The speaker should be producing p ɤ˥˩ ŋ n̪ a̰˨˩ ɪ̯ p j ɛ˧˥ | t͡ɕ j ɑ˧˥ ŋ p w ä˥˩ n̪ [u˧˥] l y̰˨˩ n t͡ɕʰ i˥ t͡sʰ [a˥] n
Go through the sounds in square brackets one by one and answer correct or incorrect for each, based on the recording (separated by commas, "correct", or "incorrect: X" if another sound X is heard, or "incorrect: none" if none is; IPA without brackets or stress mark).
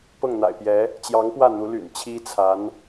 correct, incorrect: a˧˥